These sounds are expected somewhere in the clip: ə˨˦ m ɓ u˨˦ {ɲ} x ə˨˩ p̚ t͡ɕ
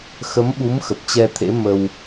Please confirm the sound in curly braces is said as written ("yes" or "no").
no